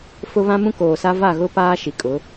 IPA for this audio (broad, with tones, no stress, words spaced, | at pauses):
fʊ˦βã˦ mũ˦koː˨sa˦ va˦˨ɣʊ˦ paː˦ʃi˨kʼʊ˨˦